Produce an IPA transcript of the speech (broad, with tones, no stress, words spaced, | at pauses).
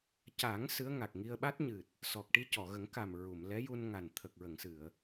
ca˨˩˦ŋ sɨ˧˥ə̯ŋa˨˩k̚ŋi˧ə̯ ɓa˦˥t̚ɲɨ˨˩t̚ | sɔ˨˩k̚ ʈi˧cɔ˨˩˨ɣə˨˩˦ŋ ka˨˩m ɹu˨˩˨mlɛ˧˥ju˧nŋa˨˩n t̪ʰə˨˩k̚ɹə˨˩˨ŋsɨ˨˩˨ə̯